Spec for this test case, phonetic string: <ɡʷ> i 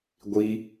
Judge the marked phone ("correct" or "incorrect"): correct